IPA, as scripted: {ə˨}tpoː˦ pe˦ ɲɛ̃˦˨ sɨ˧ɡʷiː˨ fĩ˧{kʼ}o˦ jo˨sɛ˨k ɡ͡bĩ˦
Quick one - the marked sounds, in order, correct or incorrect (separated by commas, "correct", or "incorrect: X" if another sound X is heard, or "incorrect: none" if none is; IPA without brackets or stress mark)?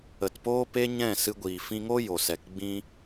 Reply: correct, incorrect: ŋ